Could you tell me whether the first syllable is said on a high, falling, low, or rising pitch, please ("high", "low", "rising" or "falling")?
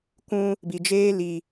high